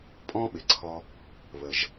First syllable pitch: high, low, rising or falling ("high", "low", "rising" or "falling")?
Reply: high